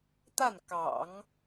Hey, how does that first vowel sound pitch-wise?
falling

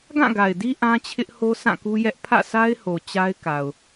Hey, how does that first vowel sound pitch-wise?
falling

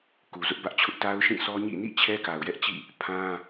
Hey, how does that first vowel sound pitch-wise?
low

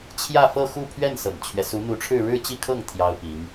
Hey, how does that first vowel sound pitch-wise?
falling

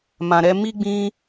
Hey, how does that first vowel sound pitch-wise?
low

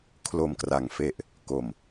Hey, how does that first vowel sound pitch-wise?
low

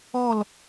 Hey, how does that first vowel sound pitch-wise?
falling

